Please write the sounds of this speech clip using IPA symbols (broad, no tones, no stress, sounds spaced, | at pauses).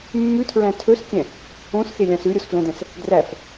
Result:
mː ʉ tʰ ɹ æ̃ tʰ ɵ s kʲ ɛ̃ | õ s x e lʲ ɑ̃ s ʉ ɾʲ o s f l ɛ̃ d ɛ̃ s | d r æ f